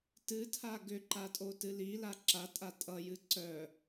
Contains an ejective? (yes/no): yes